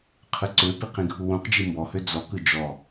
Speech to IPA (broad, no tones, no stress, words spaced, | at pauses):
qʰɯǀøpi qĩɡʱuwũqd͡ʒi mbɔhø d͡zɔkɯ d͡ʒɔ